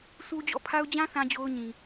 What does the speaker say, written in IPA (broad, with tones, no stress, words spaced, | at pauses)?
sʰu˦ d͡ʑɔ̰˦˨pʰa˦ʊ̯ d͡ʑã˦ θã˦d͡ʑo˦ʊ̯ ɲĩ˨